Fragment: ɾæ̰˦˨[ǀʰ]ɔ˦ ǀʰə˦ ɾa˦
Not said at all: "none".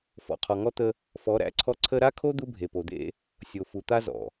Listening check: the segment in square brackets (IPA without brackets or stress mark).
ǀʰ